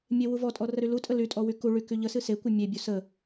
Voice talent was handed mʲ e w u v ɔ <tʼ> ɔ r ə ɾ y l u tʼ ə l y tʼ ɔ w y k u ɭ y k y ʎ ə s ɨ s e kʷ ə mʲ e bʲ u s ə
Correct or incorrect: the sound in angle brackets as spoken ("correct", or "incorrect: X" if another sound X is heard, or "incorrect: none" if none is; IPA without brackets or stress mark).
correct